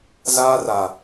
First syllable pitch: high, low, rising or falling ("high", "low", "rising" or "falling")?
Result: high